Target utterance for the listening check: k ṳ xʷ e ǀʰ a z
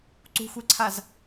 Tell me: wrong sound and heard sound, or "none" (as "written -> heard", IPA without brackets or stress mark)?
k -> ǀ